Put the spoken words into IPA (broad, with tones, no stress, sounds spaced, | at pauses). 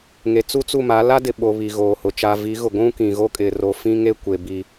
ŋ e˨ t͡s u˦ t͡s u˦˨ m a˨˦ l a˦ d ɪ˨ ɓ o˨ β i˨ ɣ oː˨ h ʊ˨ t͡ʃ a˨ v i˨˦ ɣ ʊ˨ ɡʷ ũ˦ k ĩ˨ ɣ o˦ kʼ ɪ˨ r o˨ f ĩ˦ ŋ e˦ kʷ e˨ b i˨